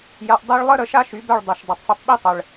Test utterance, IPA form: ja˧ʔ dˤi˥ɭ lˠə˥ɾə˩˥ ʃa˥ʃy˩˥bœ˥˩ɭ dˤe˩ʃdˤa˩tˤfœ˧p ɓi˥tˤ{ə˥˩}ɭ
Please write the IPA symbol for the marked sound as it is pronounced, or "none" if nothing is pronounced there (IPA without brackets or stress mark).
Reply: ə˩